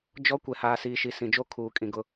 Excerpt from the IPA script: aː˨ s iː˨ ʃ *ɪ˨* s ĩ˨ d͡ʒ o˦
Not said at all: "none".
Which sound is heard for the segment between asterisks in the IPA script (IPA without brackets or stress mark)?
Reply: i˨